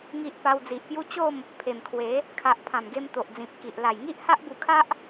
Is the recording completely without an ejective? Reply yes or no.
yes